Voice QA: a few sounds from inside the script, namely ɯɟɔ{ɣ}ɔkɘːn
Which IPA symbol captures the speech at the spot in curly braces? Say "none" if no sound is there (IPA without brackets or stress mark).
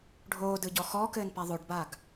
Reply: x